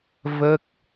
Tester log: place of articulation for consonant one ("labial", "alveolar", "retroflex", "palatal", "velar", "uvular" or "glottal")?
labial